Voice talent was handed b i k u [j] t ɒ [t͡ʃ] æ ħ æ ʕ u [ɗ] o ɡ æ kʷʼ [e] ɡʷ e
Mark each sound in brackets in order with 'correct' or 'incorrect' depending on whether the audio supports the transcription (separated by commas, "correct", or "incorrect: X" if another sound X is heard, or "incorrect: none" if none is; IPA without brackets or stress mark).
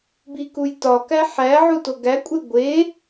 correct, incorrect: k, incorrect: t, correct